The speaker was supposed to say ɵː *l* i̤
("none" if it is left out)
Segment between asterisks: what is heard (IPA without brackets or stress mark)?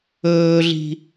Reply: ɮ